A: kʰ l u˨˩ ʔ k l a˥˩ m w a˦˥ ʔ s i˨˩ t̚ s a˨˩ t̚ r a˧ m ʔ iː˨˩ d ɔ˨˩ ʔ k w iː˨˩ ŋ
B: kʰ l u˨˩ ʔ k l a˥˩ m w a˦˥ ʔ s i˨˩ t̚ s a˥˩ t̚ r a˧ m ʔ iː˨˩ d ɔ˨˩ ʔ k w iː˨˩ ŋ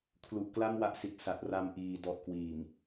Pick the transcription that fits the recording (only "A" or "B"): A